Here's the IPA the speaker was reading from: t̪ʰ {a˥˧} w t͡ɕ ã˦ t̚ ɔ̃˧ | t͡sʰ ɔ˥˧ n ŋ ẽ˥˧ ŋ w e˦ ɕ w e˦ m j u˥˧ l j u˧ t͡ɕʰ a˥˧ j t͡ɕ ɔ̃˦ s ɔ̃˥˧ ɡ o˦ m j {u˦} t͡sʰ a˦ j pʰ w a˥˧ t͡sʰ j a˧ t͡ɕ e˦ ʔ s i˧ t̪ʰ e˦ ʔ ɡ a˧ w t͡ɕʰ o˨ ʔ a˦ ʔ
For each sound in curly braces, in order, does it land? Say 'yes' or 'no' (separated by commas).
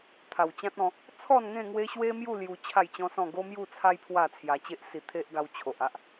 no, no